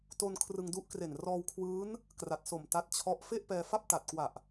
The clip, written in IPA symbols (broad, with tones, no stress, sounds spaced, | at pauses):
t o˧ n kʰ r ɯ˧ ŋ d u˦˥ ʔ k r e˨˩ n r ɔː˧ w kʰ w ɯː˦˥ n | k r a˨˩ t̚ s o˨˩ m t a˦˥ t̚ t͡ɕʰ ɔ˦˥ ʔ f e˥˩ ʔ p ɛː˧ f a˥˩ p̚ t a˨˩ t̚ k w a˨˩ ʔ